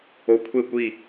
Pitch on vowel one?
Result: low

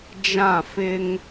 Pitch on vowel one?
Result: falling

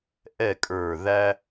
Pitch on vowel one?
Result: falling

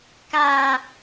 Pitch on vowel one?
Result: high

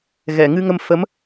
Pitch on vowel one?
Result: low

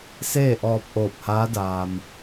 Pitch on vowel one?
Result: falling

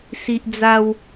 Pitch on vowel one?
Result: high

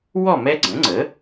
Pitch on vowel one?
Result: falling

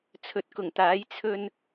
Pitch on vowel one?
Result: low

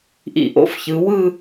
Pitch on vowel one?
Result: low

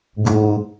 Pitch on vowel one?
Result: low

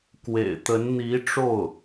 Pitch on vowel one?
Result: low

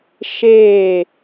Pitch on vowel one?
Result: falling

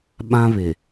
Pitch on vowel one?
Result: high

